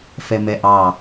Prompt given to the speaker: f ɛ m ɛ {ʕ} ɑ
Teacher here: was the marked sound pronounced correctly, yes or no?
no